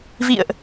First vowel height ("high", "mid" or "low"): high